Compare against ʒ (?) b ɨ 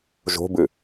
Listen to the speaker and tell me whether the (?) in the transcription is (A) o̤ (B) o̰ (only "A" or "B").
A